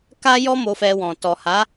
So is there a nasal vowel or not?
yes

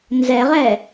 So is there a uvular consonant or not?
yes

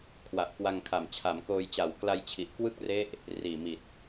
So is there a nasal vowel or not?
no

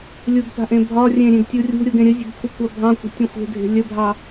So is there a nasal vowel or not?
yes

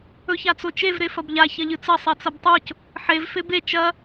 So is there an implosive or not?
no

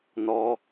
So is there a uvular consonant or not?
no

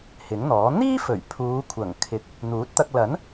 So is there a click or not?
no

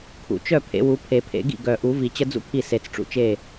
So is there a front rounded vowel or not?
yes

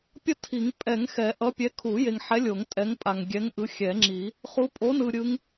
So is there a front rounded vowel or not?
no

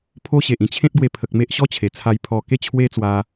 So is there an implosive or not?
no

